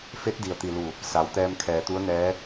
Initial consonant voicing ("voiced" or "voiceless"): voiceless